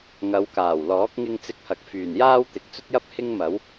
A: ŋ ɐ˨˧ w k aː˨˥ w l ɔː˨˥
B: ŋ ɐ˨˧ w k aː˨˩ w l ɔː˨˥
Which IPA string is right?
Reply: B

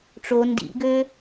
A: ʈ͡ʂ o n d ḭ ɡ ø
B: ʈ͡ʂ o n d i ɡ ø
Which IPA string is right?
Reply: A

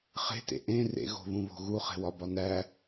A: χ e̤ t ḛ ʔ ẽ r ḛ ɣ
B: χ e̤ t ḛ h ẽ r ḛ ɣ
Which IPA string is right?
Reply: A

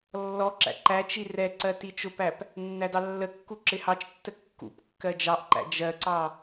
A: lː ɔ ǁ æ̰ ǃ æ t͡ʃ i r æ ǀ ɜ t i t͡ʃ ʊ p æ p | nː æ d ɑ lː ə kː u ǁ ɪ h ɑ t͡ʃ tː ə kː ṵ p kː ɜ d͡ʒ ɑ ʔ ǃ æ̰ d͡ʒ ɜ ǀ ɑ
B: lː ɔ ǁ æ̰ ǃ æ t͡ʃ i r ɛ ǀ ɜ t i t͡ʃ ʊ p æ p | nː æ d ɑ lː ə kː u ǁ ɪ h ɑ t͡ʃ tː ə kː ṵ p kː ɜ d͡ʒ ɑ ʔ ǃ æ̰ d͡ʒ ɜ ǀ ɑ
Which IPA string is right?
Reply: B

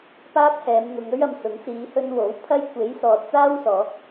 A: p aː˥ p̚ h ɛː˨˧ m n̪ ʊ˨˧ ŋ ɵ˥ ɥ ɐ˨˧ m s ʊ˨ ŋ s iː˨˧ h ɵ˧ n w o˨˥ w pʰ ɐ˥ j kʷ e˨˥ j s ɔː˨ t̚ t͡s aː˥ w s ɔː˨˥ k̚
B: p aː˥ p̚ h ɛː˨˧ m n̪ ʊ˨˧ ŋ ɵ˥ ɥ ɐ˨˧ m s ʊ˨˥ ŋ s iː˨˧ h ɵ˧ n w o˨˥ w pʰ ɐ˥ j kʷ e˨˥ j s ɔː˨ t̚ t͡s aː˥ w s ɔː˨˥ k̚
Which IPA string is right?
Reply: B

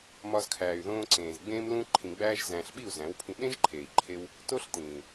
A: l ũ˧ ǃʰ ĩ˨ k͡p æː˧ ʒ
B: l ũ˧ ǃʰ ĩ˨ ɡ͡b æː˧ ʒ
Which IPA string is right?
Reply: B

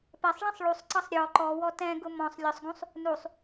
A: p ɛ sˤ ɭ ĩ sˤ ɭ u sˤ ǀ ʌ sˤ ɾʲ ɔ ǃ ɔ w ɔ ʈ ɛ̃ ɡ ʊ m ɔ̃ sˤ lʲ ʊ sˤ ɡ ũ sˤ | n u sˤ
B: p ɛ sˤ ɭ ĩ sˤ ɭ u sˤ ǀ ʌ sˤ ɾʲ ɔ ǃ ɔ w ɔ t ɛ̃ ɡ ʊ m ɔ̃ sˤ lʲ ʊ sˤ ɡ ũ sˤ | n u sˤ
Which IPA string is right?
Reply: B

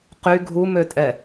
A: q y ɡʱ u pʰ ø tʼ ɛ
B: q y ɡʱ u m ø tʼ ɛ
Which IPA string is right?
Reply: B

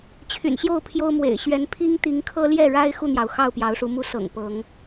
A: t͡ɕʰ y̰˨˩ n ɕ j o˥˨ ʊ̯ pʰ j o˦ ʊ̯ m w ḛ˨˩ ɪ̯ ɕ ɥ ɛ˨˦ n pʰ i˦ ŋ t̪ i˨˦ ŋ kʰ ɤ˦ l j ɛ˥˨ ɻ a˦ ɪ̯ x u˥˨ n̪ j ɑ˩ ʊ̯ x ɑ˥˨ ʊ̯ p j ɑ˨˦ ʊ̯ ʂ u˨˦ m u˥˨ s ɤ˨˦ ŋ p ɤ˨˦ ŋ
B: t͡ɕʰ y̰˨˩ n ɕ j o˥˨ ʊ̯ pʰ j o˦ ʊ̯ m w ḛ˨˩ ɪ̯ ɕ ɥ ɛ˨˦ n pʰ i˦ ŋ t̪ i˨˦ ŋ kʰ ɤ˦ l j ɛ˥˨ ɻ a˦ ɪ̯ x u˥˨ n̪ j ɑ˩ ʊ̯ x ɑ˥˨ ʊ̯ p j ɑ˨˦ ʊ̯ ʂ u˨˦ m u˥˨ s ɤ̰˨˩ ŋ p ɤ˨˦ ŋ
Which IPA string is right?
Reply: B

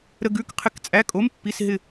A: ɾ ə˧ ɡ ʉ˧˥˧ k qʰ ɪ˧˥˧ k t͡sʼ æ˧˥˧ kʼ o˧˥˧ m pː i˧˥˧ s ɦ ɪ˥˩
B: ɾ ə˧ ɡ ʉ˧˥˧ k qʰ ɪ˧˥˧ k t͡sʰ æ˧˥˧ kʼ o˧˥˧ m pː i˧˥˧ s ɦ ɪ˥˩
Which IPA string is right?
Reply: A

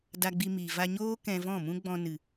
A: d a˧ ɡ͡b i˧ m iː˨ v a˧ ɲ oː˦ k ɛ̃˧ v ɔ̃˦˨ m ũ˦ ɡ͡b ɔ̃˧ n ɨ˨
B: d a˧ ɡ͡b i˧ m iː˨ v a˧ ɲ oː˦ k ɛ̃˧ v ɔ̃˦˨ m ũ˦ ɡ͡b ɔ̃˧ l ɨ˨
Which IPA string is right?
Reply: A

